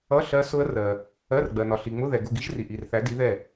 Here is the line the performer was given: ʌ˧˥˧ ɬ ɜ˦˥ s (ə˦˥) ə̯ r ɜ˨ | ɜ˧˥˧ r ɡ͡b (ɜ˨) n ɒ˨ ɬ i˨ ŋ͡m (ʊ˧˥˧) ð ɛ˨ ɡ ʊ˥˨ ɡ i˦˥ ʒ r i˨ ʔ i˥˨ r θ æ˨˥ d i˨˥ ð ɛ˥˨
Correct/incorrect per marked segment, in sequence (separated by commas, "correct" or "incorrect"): incorrect, correct, correct